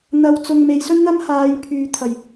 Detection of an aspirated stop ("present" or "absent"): present